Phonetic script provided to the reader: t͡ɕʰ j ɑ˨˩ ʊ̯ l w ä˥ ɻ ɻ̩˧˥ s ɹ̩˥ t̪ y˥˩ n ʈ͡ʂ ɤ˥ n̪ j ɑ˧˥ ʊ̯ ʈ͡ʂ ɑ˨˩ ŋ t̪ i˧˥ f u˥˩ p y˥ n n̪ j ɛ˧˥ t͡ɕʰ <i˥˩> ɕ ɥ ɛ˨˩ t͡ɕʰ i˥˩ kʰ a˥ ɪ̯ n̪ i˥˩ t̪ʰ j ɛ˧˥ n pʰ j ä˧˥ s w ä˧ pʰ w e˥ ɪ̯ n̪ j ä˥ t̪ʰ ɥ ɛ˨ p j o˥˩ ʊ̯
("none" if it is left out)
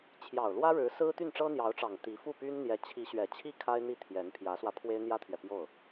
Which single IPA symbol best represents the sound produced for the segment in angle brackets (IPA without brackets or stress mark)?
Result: i˧˥